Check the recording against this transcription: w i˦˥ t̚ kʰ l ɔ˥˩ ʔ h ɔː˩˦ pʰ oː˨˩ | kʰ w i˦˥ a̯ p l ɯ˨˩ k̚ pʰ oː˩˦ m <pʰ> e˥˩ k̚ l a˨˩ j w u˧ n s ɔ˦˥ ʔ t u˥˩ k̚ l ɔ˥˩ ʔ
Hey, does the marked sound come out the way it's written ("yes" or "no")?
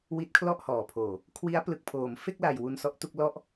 no